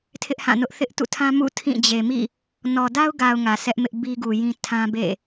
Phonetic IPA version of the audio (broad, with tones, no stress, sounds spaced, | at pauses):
tʰ ɪ˦ ʔ h ã˦˨ n ʊ˦ ʔ θ ɪ˦ ʔ t ṵ˦˨ tʰ ã˦ m ṵ˦˨ tʰ ĩ˦˨ d͡ʑ e˨ m ḭ˦˨ | n ɔ˨ d a˦ ʊ̯ ɡ a˨ ʊ̯ ŋ ä˨ s ɛ˦ ʔ m ɪ˦ ʔ b i˦ ɡ u˨ j ĩ˦ tʰ ã˦ b ḛ˦˨